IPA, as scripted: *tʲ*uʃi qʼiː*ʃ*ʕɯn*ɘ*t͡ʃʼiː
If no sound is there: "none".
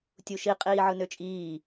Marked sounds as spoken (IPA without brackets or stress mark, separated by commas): tʲ, none, ø